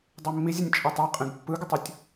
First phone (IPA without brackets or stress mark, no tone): dˤ